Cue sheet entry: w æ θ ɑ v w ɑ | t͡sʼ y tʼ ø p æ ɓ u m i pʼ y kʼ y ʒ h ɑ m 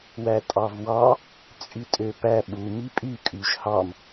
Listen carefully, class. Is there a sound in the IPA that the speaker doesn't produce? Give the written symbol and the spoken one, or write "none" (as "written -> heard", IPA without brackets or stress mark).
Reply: θ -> tʼ